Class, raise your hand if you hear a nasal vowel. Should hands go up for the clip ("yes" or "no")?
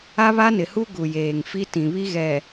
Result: yes